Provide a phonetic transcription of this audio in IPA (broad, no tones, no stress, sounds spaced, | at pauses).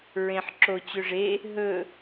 ɹ ẽ ħ ǁ o t͡ɕ ø ʐ e | ɦ ɵ